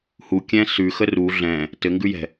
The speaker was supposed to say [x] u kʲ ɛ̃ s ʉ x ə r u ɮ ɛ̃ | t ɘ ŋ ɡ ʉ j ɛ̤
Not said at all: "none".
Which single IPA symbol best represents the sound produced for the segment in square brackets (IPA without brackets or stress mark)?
h